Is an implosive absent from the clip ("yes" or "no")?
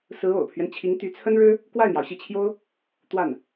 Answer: yes